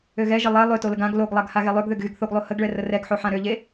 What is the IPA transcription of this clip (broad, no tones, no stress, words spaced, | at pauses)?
øɣɛʒə lˠɛ lˠøtoləɡ ãɡ loɡlˠaɡ haɣelˠøɡ ðøɡɣyɡθoɡlˠo həɡɭɛ rərɛɡħo ħãɾøʎe